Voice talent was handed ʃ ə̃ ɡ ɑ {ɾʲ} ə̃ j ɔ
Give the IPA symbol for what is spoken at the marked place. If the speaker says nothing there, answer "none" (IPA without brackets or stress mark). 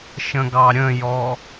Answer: ɾʲ